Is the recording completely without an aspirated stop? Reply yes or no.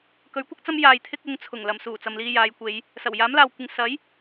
no